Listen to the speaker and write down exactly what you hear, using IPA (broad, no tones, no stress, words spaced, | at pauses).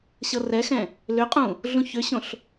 ɕɤrɛxɛ̃ | lʏqʼũ | ɮũçʏɕõɬ